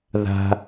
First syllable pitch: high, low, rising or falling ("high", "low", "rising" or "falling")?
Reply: low